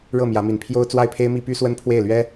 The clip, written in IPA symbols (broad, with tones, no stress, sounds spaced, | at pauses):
ɻ ɤ˥˩ m j ä˧˥ m i˧˥ n pʰ j o˥ ʊ̯ t͡s w a˥˩ ɪ̯ pʰ e˥ ɪ̯ m i˥ p y˥ s w ə˥ n pʰ w e˥˩ ɪ̯ l ɥ ɛ˥